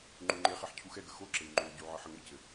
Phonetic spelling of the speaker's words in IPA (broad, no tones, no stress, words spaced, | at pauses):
ŋ͡ǃuŋ͡ǃeχeħ cʰuxɛɡə xoǁey̯ ŋ͡ǃou̯ɟu ʕɘħəŋɘcɘ